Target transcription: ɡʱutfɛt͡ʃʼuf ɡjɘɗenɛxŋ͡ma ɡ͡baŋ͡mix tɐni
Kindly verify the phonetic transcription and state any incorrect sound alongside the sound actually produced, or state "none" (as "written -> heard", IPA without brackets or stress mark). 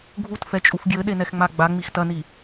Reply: none